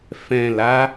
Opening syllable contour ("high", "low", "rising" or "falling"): low